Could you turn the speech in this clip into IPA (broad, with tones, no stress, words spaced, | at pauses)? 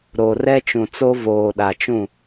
ɾo˨rɛ˦t͡ʃũ˨t͡so˦ voː˨ɗa˨t͡ʃũ˦˨